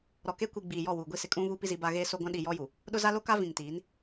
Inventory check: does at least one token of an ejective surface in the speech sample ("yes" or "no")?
yes